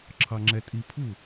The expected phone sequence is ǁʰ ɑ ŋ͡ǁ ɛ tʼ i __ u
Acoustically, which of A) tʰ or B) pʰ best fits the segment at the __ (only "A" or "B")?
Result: B